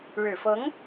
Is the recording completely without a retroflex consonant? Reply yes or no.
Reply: no